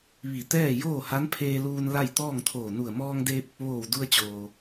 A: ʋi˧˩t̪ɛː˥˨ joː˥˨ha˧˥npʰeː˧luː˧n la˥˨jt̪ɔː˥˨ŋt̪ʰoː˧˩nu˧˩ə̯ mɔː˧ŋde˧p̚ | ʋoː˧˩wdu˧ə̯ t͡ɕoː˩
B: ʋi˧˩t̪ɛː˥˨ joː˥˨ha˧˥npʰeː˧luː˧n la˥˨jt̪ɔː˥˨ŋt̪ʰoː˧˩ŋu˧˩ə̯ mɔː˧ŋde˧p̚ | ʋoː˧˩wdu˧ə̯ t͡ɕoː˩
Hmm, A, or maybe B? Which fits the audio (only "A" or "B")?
A